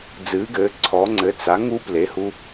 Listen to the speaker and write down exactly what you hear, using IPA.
d͡z ɨː˩˧ ɡ ɘː˩˧ ǀʰ ɔ˩˧ ŋ͡ǀ ɘ˩˧ t͡s a˩˧ ŋ u˧ p l e˩˧ h u˧

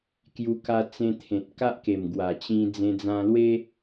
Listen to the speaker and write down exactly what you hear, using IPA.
k j u˧ k a˧ t͡s ẽ˧ t̪ʰ ẽ˨ t̚ k a˦ ʔ k e˨˩ m ɡ w a˨˩ t͡ɕ ĩ˧ d͡z ẽ˧ d͡z ã˧ l w e˦

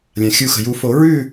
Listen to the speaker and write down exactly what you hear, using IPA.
lʲ ã˩ xʲ u˨˩˦ x ə̤˩ j u˨˩˦ f o˨˩˦ ɹ ʉ˦˨

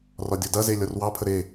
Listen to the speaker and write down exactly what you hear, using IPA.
r ɒ dʲ ɔ d ɐ z e lʲ ɒ r w ɑ pʰ ə ɾ e

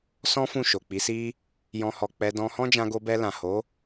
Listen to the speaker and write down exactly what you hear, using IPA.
s ɔ̃˦ f ũ˦˨ ʃ o˨ k͡p i˨˦ s i˦ | j ɔ̃˧ h ɔ˨ k͡p ɛ˧ d ɔ̃˧ h ɔ̃˦ d͡ʒ ã˧ ɡ o˧ b ɛ˧ l ã˨ h o˨˦

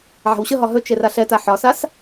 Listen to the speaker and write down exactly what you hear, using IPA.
ʕ a̤ w ɕ ə ɦ ɒ ɦ ɵ t͡ʃ e r a ɬ ɛ t a ħ ɒ s a s

